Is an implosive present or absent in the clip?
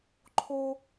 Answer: absent